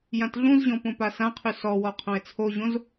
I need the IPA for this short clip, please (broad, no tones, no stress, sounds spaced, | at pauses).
j ã t ɮ ũ z ʑ ɔ̃ p õ p a s ã qʰ ʉ s ɔ w ɔ qʰ õ ɪ̯ t͡sʰ o ʑ õ z